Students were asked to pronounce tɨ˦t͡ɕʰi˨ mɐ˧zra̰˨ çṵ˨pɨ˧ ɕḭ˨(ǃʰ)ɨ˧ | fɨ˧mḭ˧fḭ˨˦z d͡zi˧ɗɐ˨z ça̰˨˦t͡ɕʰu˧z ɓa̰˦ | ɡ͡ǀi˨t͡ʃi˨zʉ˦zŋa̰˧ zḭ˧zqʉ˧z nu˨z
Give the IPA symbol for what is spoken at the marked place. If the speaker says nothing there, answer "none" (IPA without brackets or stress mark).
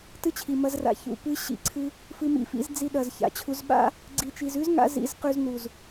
ǀʰ